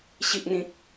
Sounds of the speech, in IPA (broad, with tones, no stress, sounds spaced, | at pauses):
ɕ i˨ ʔ n̪ ĩ˨ k̚